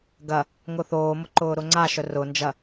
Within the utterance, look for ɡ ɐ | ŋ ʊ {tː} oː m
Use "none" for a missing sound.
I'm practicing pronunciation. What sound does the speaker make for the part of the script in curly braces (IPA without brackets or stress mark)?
θ